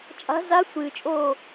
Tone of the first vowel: rising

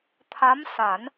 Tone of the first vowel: rising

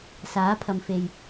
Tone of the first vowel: rising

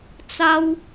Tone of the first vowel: high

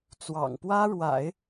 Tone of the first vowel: low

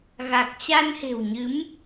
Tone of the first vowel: low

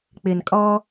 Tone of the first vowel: low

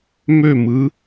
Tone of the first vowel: falling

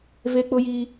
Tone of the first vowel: high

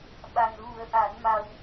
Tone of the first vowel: low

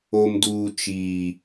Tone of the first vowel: low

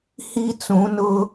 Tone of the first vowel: high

